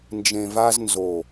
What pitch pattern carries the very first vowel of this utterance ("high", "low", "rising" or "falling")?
low